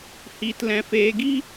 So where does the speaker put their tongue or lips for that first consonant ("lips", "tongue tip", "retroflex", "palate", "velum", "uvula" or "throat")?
throat